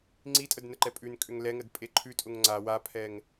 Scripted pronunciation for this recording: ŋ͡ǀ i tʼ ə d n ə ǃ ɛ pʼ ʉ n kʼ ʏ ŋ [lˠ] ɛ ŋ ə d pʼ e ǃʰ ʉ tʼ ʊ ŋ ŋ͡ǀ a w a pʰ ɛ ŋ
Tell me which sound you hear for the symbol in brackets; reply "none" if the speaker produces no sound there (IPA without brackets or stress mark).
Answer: l